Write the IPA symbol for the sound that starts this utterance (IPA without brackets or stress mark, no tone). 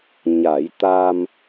ɲ